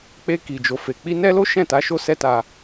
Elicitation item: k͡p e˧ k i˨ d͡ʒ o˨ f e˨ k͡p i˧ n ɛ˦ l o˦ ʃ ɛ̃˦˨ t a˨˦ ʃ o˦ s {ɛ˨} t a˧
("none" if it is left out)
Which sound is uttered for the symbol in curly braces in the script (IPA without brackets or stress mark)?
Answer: ɛ˦